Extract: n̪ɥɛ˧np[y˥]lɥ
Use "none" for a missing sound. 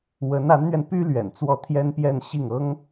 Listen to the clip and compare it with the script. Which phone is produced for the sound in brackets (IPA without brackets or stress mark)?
y˥